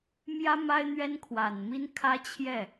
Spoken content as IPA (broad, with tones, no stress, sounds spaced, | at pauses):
m j ä˥ m a˥ ɪ̯ n̪ ɥ ɛ˥ n kʰ w a˨˩ n m i˥ n kʰ ä˥ t͡ɕʰ j ɛ˥˩